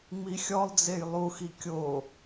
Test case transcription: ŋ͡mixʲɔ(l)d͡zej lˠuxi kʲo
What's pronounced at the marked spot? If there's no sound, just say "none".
lˠ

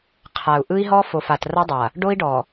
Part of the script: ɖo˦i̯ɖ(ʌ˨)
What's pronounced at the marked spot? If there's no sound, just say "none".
ɔ˨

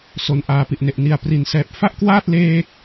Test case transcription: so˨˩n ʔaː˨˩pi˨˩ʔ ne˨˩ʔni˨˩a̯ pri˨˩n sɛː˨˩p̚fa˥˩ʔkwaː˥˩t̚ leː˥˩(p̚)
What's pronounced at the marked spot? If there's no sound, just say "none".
k̚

